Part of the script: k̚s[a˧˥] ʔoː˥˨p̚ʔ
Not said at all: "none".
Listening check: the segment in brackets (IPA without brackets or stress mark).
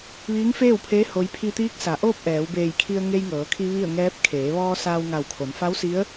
a˩˧